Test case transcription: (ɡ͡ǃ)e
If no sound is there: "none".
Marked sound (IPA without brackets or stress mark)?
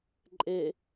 ǃʼ